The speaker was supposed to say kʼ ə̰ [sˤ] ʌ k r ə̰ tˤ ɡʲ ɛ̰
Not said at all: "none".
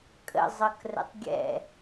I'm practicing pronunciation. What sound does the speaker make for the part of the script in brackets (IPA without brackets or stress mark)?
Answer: zˤ